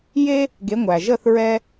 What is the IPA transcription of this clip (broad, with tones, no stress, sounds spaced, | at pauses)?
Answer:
j e˥ | ɡ e˨˥ ŋʷ æ˩ ʒ ə˥˧ θ ɹ ɛ˥